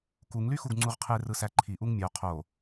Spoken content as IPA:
kuŋlyxuɡ ŋ͡ǀuʁqʰerɯsæ ǃʰiʔuŋ mʲo qʰo

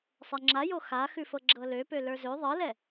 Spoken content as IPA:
sˤɛŋ͡ǁajo xaxʉfɤ ɡ͡ǁɤløpø lə˞zø ðˤɤlɛ

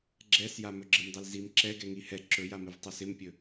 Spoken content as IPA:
ɡ͡ǁɛsja mɵɡ͡ǁɪmdˤilzim ǁɛɡɛŋi hɛ ǁɵjamɪv tˤɵsɪmpʲɵ

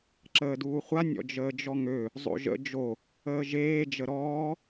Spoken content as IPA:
ǁəːduːχʷa nʲɔ̰d͡ʒəːd͡ʒɔŋø | zˤo̰ʒə̰ d͡ʒo | əːʒeː d͡ʒəɾɔː

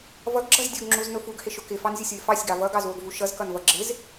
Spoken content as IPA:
vʌɡɡ͡ǁʌz dʲʊɡŋ͡ǁuznʊ fuɡhɪʃʊ kɪfɑnzʲʊsʲwɪ fɑsʲɡɑ vʌɡɑzwʊɡvu ʃʌzkʌnvʌ ɡ͡ǁɪz

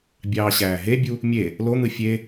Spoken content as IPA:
bʲɑːɕæːɦebʲu | mʲe | lon̪ɯ fʲe

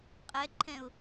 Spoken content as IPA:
qʼɛǃʰɛ̃ʊ̯

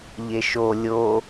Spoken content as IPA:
ʎeʃo lʲo

